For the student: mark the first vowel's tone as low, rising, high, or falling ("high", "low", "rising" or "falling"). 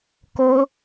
high